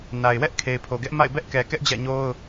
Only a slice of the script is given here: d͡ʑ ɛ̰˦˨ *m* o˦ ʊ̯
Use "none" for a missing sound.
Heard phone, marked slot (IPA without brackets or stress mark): ɲ